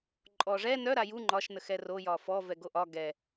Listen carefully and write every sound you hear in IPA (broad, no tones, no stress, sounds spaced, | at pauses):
ǃʼ ɔ ʐ ɛ n œ ɾ a j u ŋ͡ǃ ɒ ʃ n ə x ɛ r o j ɒ f ɔ v ɛ ɡ o ʔ ɒ ɡ ɛ